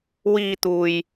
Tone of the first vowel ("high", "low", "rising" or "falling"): low